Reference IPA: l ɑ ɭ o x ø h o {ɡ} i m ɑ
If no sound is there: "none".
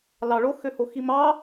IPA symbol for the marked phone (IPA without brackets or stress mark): x